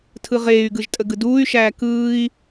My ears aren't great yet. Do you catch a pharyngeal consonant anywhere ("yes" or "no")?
no